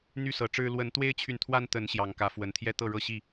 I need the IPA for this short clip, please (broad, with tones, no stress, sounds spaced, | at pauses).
n̪ y˦ s ɤ˨˩ ʈ͡ʂ ɻ̩˦ l w ə˨˦ n t̪ w e˦ ɪ̯ t͡ɕʰ y˨ n t̪ʰ w a˦ n t̪ ə˨˦ n ɕ j ɑ˨˩ ŋ k ä˨˦ f w ə˨˩ n t̪ʰ j ɛ˦ t̪ ɤ˥˨ ɻ ɤ˥˨ ɕ i˥˨